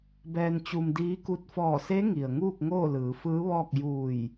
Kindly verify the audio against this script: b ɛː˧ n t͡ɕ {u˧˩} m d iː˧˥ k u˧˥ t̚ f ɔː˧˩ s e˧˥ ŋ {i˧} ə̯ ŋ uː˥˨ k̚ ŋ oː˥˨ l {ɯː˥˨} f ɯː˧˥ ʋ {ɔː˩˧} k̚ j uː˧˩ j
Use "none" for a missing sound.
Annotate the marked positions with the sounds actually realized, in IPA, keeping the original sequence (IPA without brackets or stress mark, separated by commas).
u˧, i˩, ɯː˩˧, ɔː˥˨